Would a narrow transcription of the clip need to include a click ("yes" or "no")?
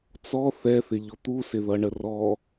no